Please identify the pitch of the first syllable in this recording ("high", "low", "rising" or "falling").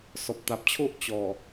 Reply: low